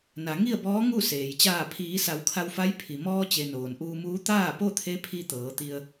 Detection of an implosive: absent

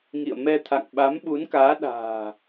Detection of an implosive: present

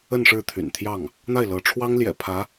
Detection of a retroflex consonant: present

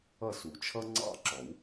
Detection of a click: present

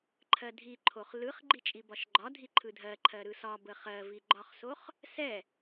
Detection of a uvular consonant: present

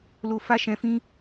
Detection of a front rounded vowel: absent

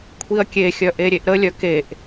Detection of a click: absent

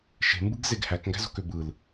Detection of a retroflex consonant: absent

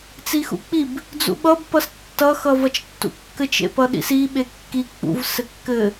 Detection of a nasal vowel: absent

